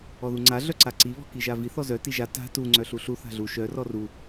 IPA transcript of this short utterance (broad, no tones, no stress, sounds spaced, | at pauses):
ɔ ð u ŋ͡ǀ a ɮ œ ǀ a ǀ i β ɔ̤ k i ʒ a v i θ ɔ z œ t i ʒ a t a̤ t u ŋ͡ǀ œ ɬ u ɬ u θ a̤ ɮ u ʃ œ r ɔ r u